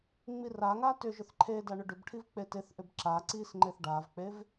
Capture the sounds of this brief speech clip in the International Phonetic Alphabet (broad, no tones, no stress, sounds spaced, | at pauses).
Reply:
ŋ͡m i r a ŋ a t ʏ ʒ ʏ θ ǃʰ e d a ɳ ʏ ɖ ʏ b ʈʰ i v k͡p e t e θ ʔ ʏ b ǁ a ǀ i s ŋ͡ǃ e θ ɖ a v k͡p e v